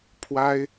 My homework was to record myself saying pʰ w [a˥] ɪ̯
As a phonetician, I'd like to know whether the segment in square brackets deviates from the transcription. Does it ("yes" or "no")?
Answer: no